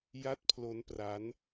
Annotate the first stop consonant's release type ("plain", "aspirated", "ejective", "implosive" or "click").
plain